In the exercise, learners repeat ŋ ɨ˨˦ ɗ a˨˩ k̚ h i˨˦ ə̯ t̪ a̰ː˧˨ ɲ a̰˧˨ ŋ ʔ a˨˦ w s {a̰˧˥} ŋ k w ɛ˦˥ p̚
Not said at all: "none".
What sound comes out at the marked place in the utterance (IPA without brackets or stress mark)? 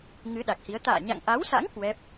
a̰˧˥